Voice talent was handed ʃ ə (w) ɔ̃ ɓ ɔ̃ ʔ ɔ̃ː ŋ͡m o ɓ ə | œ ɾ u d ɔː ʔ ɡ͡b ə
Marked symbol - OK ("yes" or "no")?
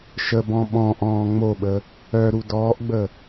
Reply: no